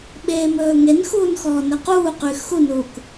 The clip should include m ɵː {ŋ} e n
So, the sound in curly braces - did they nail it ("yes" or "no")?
yes